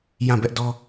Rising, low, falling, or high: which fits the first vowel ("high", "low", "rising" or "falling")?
falling